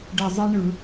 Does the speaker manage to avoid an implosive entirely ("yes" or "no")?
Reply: yes